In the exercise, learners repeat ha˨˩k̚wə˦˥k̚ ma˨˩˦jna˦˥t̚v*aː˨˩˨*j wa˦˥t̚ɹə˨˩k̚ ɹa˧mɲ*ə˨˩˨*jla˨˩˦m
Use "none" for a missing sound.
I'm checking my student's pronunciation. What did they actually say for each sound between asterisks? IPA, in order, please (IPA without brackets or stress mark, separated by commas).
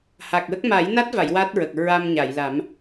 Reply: a˨˩˨, a˨˩˨